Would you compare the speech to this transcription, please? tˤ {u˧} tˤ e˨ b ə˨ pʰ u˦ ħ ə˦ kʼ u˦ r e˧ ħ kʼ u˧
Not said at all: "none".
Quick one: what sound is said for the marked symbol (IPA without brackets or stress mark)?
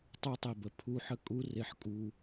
u˧